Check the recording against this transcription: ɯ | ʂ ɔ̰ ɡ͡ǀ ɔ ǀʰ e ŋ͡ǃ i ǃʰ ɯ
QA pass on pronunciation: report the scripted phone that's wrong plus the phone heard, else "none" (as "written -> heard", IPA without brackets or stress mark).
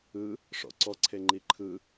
ɡ͡ǀ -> ǀ